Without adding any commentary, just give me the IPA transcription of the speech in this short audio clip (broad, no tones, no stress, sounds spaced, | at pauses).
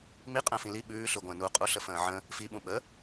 m i qʼ ə̃ː f ĩ l i ɓ ʉː ɬ ʉ ɡʷ ə̃ː n u qʼ u ɬ ə f ə̃ː ʕ ə̃ | f i ɓ ũ ɓ ə